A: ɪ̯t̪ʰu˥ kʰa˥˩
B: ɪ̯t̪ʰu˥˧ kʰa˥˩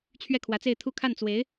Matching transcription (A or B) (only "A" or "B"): B